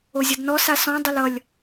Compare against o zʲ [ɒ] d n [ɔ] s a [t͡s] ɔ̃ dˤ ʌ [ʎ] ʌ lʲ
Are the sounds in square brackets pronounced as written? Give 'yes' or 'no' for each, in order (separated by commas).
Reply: no, yes, no, no